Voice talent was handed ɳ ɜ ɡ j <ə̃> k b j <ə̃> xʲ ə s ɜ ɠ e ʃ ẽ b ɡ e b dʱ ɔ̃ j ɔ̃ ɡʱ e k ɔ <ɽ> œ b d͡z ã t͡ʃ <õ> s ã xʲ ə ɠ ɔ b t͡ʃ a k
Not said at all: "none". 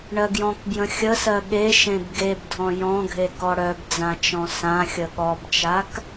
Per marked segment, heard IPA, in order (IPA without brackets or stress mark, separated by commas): ɔ̃, ə̃, ɽ, ɔ̃